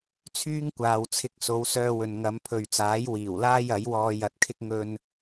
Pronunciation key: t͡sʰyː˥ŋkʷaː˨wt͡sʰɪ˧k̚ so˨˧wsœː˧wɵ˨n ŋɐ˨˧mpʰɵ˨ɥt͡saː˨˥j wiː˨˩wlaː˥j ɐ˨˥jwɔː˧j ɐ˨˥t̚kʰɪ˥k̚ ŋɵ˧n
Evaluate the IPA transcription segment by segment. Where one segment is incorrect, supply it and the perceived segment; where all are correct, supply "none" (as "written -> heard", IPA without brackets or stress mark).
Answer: none